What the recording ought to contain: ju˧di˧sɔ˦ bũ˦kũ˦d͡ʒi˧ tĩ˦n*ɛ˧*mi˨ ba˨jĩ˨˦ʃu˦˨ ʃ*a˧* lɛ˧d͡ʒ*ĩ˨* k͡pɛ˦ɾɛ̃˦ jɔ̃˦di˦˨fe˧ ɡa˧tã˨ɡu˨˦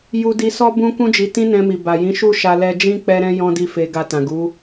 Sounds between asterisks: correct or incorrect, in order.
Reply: incorrect, correct, incorrect

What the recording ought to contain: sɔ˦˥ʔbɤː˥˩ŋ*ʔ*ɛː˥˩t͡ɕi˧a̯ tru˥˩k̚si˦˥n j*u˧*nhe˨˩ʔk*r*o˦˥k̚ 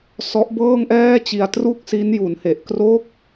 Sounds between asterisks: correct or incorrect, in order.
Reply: correct, incorrect, correct

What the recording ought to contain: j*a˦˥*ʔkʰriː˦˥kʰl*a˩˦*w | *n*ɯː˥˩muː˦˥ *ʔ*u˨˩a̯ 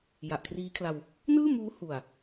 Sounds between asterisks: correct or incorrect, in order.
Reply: incorrect, incorrect, correct, incorrect

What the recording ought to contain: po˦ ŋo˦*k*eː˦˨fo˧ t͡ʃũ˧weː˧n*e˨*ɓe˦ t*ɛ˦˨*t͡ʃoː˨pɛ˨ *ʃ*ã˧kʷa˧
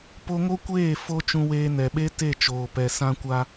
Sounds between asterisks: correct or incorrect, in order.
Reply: incorrect, incorrect, incorrect, incorrect

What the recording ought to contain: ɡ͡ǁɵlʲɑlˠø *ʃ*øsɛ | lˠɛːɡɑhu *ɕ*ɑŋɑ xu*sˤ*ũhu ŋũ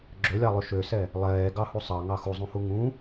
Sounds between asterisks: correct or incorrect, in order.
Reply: correct, incorrect, incorrect

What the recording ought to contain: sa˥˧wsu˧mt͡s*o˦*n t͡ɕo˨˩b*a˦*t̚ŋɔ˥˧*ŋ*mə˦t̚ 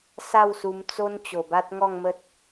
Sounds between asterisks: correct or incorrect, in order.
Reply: correct, correct, correct

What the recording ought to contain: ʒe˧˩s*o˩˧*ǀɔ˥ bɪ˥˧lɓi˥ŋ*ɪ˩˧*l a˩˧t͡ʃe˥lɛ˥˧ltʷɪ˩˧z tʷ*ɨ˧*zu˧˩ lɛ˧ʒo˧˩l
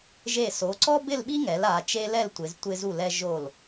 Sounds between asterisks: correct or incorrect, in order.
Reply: correct, incorrect, incorrect

